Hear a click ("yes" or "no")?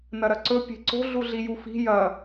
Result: yes